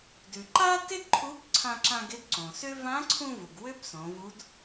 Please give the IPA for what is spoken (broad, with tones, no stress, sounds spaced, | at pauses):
d ʉ˩ ǃ a˥ t ɪ˥ d ǃʰ u˧˥ b ǀʰ ã˧ ǁ ã˧ ɡ ɪ˧˥ d ǀ õ˩ s ʏ˥ v ã˧˥ ǀʰ ũ˧ v u˩ ɡ w ʏ˥ b s õ˩˧ v u˧˥ d